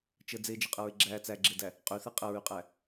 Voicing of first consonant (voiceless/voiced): voiceless